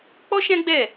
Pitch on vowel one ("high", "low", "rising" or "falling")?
high